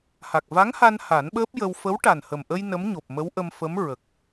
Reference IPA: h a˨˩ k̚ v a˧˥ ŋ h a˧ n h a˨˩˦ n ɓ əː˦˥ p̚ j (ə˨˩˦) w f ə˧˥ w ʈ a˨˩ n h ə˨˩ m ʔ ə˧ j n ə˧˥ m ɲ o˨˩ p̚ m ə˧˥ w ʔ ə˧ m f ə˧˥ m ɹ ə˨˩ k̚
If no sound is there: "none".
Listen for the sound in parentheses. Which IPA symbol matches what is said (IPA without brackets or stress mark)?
ə˧